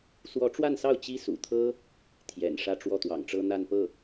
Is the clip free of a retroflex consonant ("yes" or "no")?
no